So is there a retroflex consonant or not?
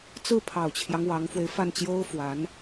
no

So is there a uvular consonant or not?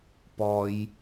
no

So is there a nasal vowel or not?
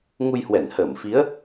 no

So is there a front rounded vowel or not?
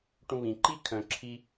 yes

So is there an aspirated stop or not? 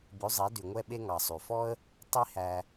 no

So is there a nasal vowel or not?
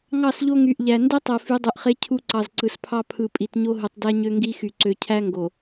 no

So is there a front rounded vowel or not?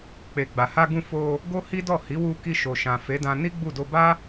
no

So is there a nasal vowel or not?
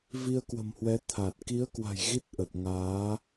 no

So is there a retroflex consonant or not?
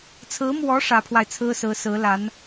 yes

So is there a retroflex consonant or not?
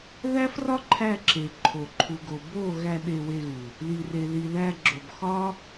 no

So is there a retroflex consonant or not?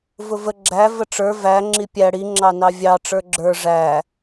yes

